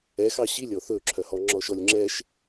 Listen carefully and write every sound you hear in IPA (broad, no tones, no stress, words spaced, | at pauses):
ɛxɑ ɕilʲɔ θɵǁʰœhɔ ŋ͡ǁɔʃɔlʲŋ͡ǁɛʃ